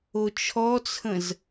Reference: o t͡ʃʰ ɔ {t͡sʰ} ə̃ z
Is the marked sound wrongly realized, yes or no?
no